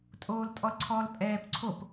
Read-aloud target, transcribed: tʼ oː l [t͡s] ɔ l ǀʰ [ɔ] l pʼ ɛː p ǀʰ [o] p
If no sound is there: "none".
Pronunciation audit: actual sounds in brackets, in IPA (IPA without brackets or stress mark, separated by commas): tʼ, ɔ, o